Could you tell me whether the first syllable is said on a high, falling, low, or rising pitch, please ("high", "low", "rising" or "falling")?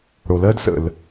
low